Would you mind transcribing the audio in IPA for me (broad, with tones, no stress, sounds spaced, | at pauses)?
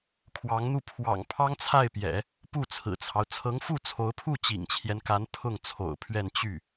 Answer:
kʰ w ɑ˧˥ ŋ n̪ u˥˩ pʰ w ɑ̰˨˩ ŋ pʰ ɑ˥ ŋ t͡sʰ a˥˩ ɪ̯ p j ɛ̰˨˩˦ | p u˥˩ t͡sʰ ɹ̩˨˩ t͡sʰ ɑ˦ ʊ̯ t͡sʰ ɤ˧˥ ŋ f u˥˩ t͡sʰ o˧˥ ʊ̯ pʰ u˥˩ t͡ɕ ḭ˨˩ ŋ t͡ɕʰ j ɛ˦ n k a˧˥ n pʰ ʊ˥˩ ŋ t͡sʰ o̰˨˩ ʊ̯ pʰ ɥ ɛ˥˧ n t͡ɕ y˥˩